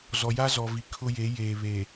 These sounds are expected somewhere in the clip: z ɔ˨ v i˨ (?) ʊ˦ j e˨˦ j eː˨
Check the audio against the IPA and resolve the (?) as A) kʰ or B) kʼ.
A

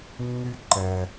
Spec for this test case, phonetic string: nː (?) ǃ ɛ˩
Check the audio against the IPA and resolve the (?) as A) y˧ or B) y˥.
A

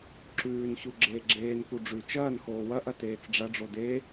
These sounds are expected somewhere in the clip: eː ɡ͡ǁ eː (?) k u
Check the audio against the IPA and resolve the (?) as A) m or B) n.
B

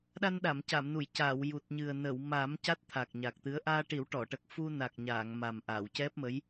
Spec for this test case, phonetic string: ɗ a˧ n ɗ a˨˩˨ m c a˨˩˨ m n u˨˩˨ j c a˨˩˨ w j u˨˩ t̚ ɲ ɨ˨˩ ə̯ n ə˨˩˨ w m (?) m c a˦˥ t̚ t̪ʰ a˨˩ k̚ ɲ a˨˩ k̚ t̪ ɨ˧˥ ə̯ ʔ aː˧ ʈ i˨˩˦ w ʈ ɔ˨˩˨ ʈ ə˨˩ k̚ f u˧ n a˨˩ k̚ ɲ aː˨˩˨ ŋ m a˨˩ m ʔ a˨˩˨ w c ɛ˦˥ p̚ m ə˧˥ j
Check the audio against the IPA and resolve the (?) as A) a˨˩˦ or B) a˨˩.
A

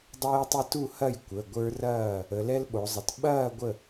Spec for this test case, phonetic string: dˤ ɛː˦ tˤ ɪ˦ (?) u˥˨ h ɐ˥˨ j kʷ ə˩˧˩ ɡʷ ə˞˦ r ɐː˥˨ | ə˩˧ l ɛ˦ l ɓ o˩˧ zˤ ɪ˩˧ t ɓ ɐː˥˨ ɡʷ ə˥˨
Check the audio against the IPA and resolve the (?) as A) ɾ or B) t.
B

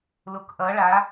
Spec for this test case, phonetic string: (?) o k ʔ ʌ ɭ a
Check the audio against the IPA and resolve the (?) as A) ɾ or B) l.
B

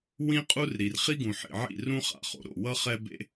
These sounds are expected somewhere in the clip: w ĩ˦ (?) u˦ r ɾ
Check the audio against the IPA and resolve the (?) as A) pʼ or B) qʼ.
B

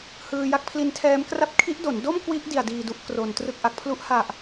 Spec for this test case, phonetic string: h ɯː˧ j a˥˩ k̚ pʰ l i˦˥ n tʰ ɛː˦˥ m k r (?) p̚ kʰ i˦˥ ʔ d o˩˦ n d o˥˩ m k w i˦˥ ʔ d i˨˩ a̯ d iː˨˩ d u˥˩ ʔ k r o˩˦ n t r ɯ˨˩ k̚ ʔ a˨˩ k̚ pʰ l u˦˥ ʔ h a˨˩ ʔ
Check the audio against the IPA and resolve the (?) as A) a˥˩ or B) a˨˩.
A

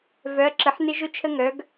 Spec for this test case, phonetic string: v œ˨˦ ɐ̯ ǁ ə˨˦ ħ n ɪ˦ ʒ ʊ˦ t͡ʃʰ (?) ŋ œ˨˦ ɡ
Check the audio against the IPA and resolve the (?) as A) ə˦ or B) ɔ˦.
A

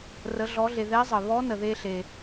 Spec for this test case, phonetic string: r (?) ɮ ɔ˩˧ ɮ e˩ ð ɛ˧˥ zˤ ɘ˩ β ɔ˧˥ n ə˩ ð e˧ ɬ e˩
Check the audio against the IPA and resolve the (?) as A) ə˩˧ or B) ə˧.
A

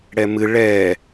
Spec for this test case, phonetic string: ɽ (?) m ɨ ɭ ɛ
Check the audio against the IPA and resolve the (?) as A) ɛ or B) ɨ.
A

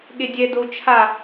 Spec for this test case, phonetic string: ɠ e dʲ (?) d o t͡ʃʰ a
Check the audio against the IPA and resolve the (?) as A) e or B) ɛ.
B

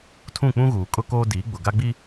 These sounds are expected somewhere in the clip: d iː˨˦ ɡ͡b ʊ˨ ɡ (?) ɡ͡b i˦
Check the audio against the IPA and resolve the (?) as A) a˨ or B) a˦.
B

